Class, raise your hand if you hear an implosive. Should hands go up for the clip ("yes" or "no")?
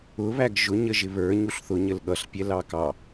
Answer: yes